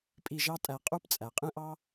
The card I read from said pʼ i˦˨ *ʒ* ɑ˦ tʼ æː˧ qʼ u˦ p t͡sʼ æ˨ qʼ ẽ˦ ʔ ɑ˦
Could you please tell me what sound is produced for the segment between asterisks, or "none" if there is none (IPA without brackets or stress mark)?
ʒ